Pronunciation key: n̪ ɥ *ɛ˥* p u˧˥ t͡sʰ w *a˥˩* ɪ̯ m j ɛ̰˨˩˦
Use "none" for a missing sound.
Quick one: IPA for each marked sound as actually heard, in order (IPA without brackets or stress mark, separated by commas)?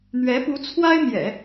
ɛ˧˥, a˥